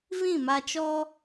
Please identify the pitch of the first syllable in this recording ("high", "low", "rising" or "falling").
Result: falling